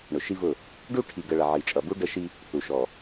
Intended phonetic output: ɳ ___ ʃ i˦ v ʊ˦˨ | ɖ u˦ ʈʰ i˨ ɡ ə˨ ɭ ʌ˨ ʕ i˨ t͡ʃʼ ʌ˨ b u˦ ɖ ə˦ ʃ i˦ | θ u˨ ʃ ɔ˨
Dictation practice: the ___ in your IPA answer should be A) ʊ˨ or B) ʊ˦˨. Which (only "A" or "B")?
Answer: A